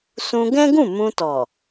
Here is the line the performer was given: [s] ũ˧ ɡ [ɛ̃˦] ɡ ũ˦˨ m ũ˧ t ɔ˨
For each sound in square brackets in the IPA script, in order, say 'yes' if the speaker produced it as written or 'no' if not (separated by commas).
yes, yes